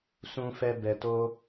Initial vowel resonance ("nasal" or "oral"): nasal